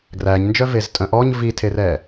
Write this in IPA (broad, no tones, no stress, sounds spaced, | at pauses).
ɡ r æ ɲ n d͡ʒ œ v e z tʼ œ̃ ʔ ɔ ɲ v i tʰ e r ɛ